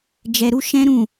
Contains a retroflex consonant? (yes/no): no